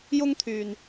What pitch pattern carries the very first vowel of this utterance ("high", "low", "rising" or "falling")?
high